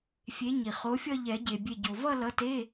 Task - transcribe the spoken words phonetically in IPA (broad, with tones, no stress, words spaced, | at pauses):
fʲe˨˥ɲi˩χo˨˥fʲʌ˥˧ ʎɛ˨˩˦ɟe˩bʲe˧˩ɟo˩ vʌ˥˧lʌ˨˥te˧˥˧